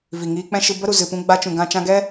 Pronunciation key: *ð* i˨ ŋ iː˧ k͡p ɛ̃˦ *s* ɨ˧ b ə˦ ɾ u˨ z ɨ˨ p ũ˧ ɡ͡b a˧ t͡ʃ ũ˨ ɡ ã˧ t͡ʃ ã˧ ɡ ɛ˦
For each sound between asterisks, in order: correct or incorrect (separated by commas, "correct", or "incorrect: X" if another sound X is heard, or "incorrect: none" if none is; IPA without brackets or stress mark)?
incorrect: v, incorrect: ʃ